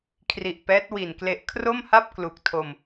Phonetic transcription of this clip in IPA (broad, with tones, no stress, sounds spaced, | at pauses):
kʰ r i˨˩ ʔ p ɛː˦˥ t̚ w i˨˩ n k l e˦˥ ʔ kʰ r o˥˩ m h a˥˩ p̚ k l u˨˩ k̚ tʰ o˧ m